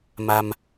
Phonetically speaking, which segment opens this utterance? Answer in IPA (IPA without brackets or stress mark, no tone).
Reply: m